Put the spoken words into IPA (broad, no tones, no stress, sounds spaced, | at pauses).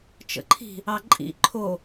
t͡ʃ ə̰ ǃʰ i̤ | ɑ ǃʼ ḭ ǃʰ o